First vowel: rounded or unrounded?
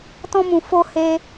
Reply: rounded